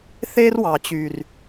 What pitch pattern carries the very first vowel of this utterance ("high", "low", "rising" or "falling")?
high